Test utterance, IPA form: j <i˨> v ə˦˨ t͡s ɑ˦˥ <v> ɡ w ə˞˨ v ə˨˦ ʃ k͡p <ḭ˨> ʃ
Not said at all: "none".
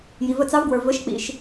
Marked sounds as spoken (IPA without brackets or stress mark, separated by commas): i˨, v, ḭ˨